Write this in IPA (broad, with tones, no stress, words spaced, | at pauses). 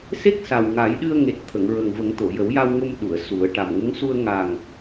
se˦˥k̚sa˨˩w ŋa˨˩˦jɗɨ˧ə̯ŋe˨˩t̚ t̪ʰə˨˩˨ŋɹə˨˩ŋvə˨˩˦ŋ t̪o˨˩˨jə˨˩˦wja˧w ŋo˧mɗu˨˩˨ə̯ su˨˩˦ə̯ ʈa˨˩mŋə˧˥ŋ su˧ə̯ ŋa˨˩ŋ